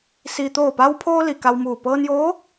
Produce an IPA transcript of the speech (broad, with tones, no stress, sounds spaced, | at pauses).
s iː˩ t̪ oː˧˩ p a˧ w pʰ oː˧ l i˩ k a˧ w m uː˧˩ p ɤː˧ n j oː˧˥